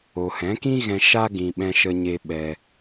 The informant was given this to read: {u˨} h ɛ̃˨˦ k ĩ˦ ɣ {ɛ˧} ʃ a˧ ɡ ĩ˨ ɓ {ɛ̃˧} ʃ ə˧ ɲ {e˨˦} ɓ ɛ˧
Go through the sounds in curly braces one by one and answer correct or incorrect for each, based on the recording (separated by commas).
incorrect, incorrect, correct, incorrect